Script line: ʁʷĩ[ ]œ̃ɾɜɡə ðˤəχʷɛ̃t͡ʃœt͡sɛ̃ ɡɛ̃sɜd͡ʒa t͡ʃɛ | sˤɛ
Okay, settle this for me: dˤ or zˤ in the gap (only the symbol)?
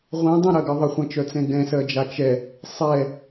dˤ